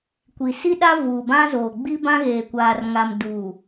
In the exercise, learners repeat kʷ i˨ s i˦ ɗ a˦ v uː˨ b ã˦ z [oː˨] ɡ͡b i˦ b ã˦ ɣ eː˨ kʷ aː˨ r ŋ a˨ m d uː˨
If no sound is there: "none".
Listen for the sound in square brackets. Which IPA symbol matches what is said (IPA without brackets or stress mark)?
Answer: oː˨